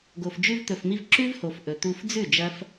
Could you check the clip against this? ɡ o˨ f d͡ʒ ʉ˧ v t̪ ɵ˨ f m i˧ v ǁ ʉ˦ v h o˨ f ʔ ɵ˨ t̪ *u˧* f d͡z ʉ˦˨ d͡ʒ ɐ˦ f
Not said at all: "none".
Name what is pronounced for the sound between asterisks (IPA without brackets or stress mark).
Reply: u˧